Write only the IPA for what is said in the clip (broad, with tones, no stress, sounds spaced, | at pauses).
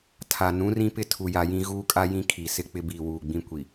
tʰ a˨ n ũ˨˦ r ĩ˦ p ɪ˦ tʰ u˨ j a˨ j ĩ˦ ɣ uː˦ kʼ a˦ j ĩ˦ kʰ i˨ s ɪ˦ k͡p ɪ˦ b iː˨ w uː˨ ɡ͡b ĩ˦ kʷ i˨